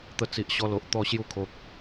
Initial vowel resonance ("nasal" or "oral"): oral